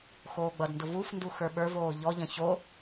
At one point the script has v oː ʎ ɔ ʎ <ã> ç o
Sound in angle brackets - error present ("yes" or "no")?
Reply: yes